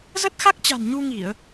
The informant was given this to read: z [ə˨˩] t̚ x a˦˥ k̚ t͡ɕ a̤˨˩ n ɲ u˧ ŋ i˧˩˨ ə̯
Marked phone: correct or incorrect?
incorrect